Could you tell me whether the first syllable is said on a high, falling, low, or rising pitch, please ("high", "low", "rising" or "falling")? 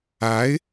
rising